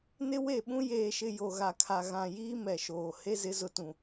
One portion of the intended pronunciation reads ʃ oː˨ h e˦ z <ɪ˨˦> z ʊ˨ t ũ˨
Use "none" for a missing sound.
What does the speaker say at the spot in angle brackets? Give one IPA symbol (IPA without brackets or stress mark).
ɪ˨˦